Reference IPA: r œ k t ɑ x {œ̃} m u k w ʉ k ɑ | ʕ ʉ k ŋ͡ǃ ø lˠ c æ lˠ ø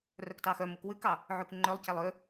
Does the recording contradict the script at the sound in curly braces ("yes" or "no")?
yes